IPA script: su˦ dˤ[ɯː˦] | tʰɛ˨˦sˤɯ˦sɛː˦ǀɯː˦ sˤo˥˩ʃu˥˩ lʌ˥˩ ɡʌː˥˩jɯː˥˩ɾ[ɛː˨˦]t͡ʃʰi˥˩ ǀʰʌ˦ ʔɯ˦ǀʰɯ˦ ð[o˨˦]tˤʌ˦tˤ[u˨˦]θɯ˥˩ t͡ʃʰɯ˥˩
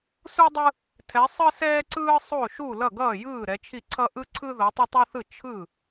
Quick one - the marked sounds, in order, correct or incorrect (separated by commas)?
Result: incorrect, incorrect, correct, incorrect